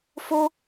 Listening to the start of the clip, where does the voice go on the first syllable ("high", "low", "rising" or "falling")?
high